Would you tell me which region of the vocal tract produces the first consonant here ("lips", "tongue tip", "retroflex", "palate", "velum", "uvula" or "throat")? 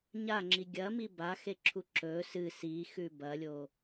palate